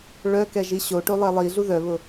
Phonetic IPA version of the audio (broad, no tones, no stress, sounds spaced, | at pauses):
ɭ œ k ɛ ʒ i ɕ o ʈ o lˠ ɛ lˠ i ɮ u ð œ β ʊ